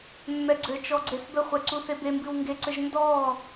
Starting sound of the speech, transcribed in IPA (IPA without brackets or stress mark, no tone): mː